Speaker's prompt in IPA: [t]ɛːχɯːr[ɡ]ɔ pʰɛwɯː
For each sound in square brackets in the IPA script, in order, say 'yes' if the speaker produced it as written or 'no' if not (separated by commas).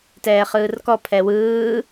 yes, no